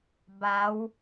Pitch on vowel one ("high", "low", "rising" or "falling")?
rising